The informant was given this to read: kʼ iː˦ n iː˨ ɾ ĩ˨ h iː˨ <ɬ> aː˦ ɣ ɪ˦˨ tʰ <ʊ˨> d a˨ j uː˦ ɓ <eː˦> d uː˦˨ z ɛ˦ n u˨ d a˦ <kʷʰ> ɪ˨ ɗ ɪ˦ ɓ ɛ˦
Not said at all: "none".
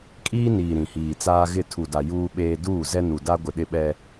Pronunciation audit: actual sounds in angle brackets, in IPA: t͡s, u˨, eː˦, ɡʷ

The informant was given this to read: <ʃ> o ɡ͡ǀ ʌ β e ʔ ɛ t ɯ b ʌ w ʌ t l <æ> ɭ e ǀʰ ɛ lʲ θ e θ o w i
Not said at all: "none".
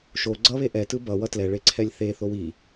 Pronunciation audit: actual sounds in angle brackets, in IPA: ʃ, ɛ

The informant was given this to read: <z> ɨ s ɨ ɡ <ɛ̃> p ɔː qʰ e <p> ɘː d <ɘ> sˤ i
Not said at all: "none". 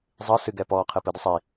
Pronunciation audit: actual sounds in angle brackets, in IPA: zˤ, ɛ, p, ɘ

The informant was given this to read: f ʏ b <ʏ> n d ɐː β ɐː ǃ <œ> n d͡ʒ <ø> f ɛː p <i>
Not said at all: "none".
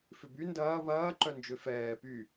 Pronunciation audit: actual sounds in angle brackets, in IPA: y, œ, ø, y

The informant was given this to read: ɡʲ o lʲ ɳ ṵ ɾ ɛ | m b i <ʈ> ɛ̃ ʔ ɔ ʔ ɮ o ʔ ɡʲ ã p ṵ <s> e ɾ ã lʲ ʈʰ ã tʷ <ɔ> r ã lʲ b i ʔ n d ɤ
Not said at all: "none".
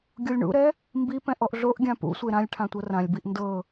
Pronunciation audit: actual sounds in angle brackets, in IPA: p, sʷ, ɤ

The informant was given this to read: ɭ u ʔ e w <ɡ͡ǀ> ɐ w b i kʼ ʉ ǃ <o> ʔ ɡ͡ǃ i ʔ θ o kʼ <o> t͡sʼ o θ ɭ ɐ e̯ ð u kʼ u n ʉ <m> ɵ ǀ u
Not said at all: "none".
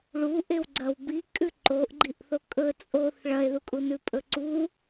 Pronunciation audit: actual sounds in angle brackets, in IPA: ɡ͡ǀ, o, ɵ, pʼ

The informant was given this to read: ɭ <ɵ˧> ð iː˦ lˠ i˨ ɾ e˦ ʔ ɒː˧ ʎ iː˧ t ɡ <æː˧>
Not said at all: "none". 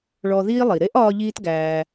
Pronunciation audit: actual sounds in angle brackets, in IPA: ɔ˧, æː˧

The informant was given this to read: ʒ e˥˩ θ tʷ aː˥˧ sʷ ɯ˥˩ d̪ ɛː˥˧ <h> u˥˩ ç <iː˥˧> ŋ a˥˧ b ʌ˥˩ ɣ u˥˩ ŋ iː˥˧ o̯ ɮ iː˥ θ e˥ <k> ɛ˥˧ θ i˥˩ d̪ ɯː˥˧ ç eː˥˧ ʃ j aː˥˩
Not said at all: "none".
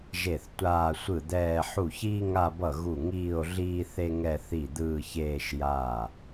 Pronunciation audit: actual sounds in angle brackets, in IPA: ħ, iː˥, ŋ

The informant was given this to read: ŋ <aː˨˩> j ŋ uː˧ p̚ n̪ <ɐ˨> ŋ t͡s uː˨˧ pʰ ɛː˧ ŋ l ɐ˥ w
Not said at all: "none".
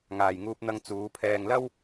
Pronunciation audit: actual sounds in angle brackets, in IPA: aː˨, ɐ˧

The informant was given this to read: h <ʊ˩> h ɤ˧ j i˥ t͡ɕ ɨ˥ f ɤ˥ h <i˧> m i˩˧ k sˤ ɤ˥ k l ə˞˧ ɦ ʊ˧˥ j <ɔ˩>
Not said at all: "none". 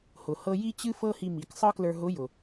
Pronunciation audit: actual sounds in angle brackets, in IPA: ʊ˩, i˧, ʊ˩

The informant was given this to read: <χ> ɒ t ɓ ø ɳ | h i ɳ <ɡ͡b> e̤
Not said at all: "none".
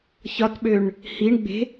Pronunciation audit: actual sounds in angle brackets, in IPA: ç, ɡ͡b

